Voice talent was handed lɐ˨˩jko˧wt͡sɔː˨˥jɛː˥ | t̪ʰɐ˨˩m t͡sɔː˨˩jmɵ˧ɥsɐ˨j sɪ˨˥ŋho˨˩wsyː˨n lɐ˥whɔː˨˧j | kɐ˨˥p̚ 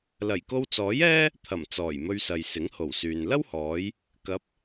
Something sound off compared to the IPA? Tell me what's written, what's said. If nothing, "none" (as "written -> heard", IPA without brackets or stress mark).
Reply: none